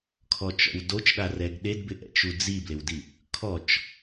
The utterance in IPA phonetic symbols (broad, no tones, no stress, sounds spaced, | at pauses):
kʰ ɔ t͡ʃ ɔ̰ w d o t͡ʃ ɗ a r ɛ ɡ ɗ e d b ɪ ʔ ɛ̰ t͡ʃ u d͡z i b l ɪ w d i | kʰ ɔ t͡ʃ